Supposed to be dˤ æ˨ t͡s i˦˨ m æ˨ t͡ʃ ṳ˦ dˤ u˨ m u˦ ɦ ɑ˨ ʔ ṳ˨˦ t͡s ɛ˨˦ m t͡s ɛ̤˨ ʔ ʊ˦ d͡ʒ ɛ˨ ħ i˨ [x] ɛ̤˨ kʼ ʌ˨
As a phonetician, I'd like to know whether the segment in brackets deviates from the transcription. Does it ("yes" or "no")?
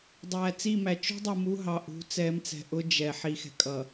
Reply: no